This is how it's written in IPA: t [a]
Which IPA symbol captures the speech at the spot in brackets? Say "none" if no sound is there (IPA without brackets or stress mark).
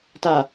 a